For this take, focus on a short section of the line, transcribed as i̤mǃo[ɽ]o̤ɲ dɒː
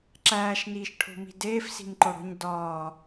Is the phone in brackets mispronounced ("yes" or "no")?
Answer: no